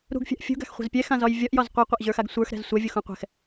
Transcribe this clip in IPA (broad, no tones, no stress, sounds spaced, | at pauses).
ɾ ṳ ɡ fʲ a̤ ʔ fʲ ṳ ɡ a̤ x χʷ ɛ̤ z pʲ ɛ x ã z ɒ j vʲ ɒ ʔ j ɒ z qʷ ə˞ qʷ ɛ ʔ ʑ ə˞ x a ɡ sʷ ə˞ x ɾ ɛ̤ z sʷ ɛ vʲ u x ũ qʷ ɛ̤ x